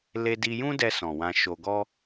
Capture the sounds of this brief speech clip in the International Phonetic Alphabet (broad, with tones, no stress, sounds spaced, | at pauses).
l e˧ d i˧ j ũ˦ d ɛ˧ s ɔ̃˨ w ã˧ ʃ o˧ ɡ ɔ˦